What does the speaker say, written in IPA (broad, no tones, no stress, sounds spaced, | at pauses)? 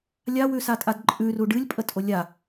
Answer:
lʲ a w ʉ s a tʼ a d ǃʼ ʉ r u ɖ ɨ lʲ pʼ ə tʼ o lʲ a